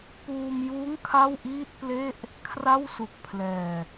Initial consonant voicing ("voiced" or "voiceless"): voiceless